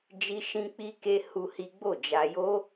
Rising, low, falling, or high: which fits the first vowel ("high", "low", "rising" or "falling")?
high